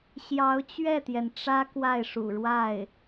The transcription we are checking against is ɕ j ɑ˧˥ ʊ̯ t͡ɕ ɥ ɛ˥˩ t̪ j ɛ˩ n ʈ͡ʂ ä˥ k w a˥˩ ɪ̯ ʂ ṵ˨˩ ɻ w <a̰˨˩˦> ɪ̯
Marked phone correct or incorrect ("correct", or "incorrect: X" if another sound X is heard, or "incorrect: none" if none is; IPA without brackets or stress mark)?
incorrect: a˥˩